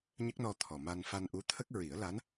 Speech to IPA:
ɲ ə˦˥ k̚ n ɔ˧ t̪ʰ ɔ˨˩ m a˧ n f a˧ n ʔ u˧˥ t̪ʰ ə˦˥ k̚ ɹ i˨˩˦ ə̯ l a˧˥ n

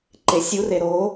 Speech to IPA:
ǃ e sʲ u r e ɾ o

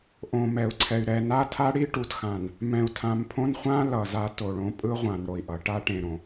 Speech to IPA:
ʔ õ˨ m ɛ˨ u̯ ǀʰ ɛ˨ y̯ ɾ ɛ˨ n a˦ tʰ a˦ ɽ i˦ ʈ u˨ t x ã˨ n | m ɛ̃˨ u̯ tʰ ã˨ m pʰ õ˦ n χʷ ã˦ l ʌ˨ z a˦ t o˨ ɭ õ˦ pʼ ɯ˦ ʁʷ ã˨ n ɽ o˨ i̯ ʔ ʌ˨ ʈ a˦ ʈ ẽ˨ ɾ õ˨

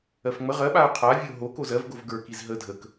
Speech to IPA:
ɜ f ŋ͡m ə ʁ ɜ ɓ a ʊ̯ qʰ a vʲ ə ʊ̯ ɦ o k o z ɜ v ɡ o v ɡ ə˞ k i z ɦ ə dʱ ə k

